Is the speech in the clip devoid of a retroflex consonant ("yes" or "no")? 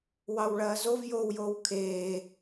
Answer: no